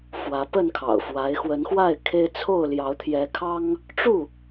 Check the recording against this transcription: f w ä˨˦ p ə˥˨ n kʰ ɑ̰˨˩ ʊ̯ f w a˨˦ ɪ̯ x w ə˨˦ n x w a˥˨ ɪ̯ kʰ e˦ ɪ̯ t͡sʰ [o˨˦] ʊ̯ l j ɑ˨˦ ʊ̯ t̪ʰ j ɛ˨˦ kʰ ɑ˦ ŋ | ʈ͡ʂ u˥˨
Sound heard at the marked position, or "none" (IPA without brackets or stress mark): o˥˨